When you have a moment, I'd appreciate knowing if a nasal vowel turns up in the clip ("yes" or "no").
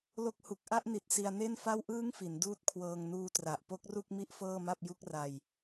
no